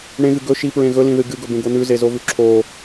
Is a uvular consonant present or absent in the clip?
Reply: absent